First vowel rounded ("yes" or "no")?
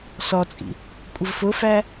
yes